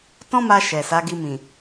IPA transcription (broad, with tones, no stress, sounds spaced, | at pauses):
t ɔ̃˦ m a˧ ʃ ɛ˨ s a˨˦ ɡ i˧ m ĩ˨